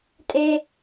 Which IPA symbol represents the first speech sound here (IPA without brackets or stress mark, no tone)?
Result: tʼ